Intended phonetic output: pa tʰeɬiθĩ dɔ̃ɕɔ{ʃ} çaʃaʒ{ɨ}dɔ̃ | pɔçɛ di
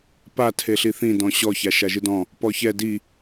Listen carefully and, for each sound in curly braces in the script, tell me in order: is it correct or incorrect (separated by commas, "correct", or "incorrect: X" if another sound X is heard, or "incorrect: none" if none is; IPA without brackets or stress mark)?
incorrect: none, correct